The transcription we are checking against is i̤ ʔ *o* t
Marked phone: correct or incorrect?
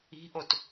correct